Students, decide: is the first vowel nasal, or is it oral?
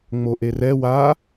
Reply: oral